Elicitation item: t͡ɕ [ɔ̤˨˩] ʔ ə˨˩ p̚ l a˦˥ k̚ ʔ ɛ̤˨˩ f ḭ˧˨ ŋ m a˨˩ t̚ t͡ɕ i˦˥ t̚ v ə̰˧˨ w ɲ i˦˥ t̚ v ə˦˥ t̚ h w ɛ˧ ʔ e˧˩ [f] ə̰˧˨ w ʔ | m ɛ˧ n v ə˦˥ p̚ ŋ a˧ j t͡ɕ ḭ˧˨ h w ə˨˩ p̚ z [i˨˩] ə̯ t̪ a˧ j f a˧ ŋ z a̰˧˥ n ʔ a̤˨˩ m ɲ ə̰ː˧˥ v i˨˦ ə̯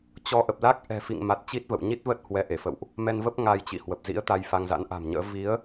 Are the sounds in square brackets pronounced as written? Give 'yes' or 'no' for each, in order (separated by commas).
no, yes, no